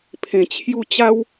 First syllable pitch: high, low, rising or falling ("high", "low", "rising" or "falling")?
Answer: low